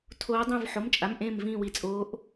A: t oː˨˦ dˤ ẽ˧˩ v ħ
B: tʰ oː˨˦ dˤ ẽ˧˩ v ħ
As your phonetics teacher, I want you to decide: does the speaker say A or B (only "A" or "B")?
B